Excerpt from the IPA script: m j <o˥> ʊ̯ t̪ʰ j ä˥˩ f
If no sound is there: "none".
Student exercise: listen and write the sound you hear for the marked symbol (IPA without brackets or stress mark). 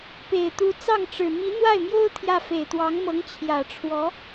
o˥